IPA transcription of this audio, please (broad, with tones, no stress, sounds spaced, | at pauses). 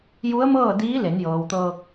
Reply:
j u˧˥ ə̯ m ɤː˥˨ d iː˧˥ l e˩˧ n j ɤː˩ w t̪ ɤː˧ k̚